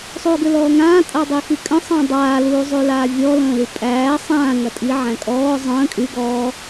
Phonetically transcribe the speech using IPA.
sˤuːɡʏlɔːŋãː tʼadˤixikʼə̃ sˤə̃ːdˤaː luːzˤylaːvʲɔ lə̃ːlypʼæː sˤãː ŋɐtʼi ʕæ̃kʼɔː zˤə̃ː kʼy ɡɔː

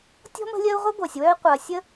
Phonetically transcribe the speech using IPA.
tʲɔ̤˥mə̤˦lʲɜ˦u̯ ʁʷe˥ɡʷɜ˩sʲwœ˦i̯ qʷɐː˩sʲə˦

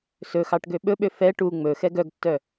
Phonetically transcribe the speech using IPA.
sɵxɑʈ ɡøɓɵɓø fɛ ʈu ŋ͡mɵ xɛɡœɡtːœ

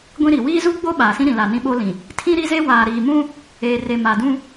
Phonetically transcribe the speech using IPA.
ɡʷĩ˦ɾi˨ wiː˦zu˦ɡ͡bo˦ ɓaː˨sĩ˦ɾĩ˨la˨ nĩ˦ɓo˦lĩ˨ | tʰĩ˦ɾi˦ze˦ waː˨ɾiː˨ mũ˦ | eː˨re˨ ma˨dũ˦

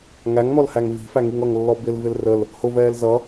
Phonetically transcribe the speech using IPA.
ŋæŋn̪ɔlhæŋ vi̤fæŋiŋ ʌŋlːɔ bɪlvɪl rəl | hʊvɛːl zʌ

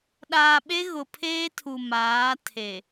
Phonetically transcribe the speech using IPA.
ɗaː˨ɓe˦ ɣʊ˨pʰeː˦tʰu˨ maː˨˦ tʰe˨

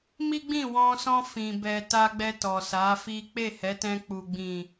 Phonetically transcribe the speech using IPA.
mi˦ɡ͡bĩ˦˨wɔ̃˧sɔ̃˧ fĩ˨ bɛ˨ ta˧ɡ͡bɛ˧ tɔ˨sa˨˦fi˦ k͡pe˦˨hɛ˨˦tɛ̃˧ k͡pu˨ɡ͡bĩ˨

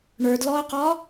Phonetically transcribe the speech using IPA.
ɳə˞dlɔɐ̯qɒ

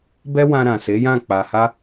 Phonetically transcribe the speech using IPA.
bɛ˦wã˧ ɾã˨se˨˦jã˦˨ k͡pa˨ha˧

